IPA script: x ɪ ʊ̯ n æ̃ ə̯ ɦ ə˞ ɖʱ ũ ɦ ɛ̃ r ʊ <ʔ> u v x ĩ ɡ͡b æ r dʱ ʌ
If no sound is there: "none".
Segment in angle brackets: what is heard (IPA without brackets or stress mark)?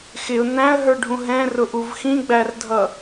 ʔ